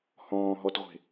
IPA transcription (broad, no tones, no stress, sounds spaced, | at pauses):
h ɔ̃ː ɦ ɔ t ʁʷ e̤